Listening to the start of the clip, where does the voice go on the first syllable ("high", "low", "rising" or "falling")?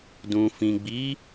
low